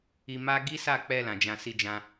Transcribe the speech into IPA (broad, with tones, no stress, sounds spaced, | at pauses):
i˧ m a˦ ɡ i˦ s a˦˨ k͡p ɛ˧ l ã˨ d͡ʒ ã˧ s i˧ d͡ʒ ã˧